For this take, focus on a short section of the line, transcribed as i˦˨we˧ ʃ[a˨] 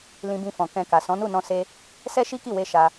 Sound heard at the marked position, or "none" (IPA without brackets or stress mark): a˧